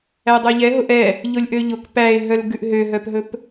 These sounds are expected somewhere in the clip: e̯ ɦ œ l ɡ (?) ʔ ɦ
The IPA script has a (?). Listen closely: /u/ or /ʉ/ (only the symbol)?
ʉ